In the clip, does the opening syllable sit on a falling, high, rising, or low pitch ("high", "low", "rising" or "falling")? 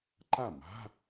falling